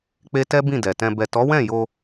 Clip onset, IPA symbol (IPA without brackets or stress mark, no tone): k͡p